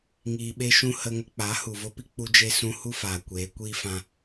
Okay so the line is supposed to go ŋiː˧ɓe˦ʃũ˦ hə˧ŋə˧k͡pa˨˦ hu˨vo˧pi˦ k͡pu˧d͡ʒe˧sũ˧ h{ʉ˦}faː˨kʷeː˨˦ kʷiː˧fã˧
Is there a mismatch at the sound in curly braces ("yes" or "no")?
yes